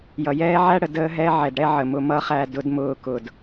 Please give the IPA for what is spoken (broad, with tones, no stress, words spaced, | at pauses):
jʌ˨jɛː˦ʕæ˦ɽə˨ dəː˦ɦɛ˦ ʕɛ˨dɽɛ˦ʕə˨mʊ˨˦ mʌ˦χæ˦˨ dʊ˦dmʊː˦kʊ˨d